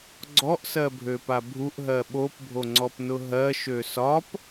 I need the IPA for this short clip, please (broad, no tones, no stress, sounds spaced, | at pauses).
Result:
ɡ͡ǀ ɔ ʔ s ɜ bʱ ø p a bʱ u ʔ ɦ ɜ ɓ o p bʱ o ŋ͡ǀ ɔ p n ʊ ɦ ɜ ʃ ø s ɒ p